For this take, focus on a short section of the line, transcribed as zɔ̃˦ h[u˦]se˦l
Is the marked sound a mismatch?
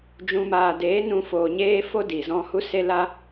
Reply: no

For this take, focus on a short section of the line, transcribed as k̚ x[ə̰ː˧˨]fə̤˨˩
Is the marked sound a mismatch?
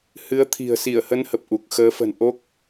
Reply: yes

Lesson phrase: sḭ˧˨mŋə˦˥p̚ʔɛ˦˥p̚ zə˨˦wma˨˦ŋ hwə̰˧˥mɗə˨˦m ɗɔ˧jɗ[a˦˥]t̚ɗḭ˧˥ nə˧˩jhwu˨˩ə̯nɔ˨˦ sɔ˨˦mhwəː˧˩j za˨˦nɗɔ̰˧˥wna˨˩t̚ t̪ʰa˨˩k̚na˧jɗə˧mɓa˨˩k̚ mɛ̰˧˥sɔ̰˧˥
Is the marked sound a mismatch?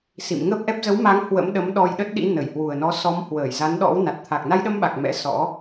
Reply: yes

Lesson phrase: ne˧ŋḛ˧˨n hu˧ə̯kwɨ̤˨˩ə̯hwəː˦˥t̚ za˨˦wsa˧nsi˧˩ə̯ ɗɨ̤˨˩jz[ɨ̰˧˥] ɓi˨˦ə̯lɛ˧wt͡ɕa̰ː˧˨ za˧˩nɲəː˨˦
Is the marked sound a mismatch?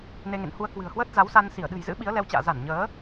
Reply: no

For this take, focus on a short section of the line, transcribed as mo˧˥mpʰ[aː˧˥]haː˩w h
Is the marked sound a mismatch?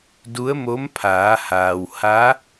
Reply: yes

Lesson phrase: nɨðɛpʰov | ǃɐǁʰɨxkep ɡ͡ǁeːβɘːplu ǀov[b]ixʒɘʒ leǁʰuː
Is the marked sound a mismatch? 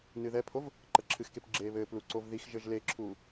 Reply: yes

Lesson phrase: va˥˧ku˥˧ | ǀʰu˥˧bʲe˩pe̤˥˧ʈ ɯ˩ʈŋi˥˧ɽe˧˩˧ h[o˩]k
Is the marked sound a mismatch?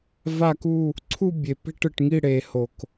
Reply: no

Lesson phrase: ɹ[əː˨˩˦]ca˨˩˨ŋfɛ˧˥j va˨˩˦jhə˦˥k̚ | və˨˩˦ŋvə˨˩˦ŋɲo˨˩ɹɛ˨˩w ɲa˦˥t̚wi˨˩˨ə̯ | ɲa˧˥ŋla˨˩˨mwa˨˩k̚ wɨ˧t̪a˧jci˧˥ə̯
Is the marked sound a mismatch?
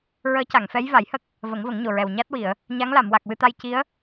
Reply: yes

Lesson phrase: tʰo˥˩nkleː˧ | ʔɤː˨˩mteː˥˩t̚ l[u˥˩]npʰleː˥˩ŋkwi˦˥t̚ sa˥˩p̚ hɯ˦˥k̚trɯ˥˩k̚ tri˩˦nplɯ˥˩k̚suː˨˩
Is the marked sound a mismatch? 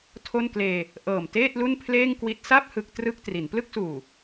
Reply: no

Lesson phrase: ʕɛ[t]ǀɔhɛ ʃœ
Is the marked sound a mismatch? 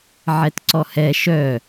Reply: no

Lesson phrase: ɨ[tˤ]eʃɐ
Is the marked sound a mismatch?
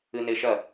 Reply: yes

